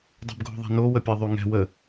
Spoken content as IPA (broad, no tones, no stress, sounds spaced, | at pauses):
dˤ ɛ̤ b ɡʱ o̤ ðˤ ɛ̤ n o w ə pʲ ɛ ðˤ y ŋ ɛ̤ w ə